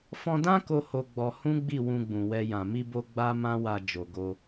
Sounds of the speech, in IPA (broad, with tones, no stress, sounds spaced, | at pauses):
f ɔ̃˧ d ã˦ k o˦ h o˧ ɡ͡b ɔ˧ h ũ˦ ɡ͡b i˦˨ w ũ˧ ɡ͡b ũ˨ w ɛ˧ j ã˨ m i˧ b o˧ ɡ͡b a˦ m ã˦ w a˧ d͡ʒ o˨ ɡ o˧